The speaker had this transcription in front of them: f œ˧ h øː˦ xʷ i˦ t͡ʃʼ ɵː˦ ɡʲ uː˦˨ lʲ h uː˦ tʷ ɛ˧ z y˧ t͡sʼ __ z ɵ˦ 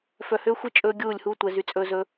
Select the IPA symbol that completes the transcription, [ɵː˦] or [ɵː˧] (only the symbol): ɵː˦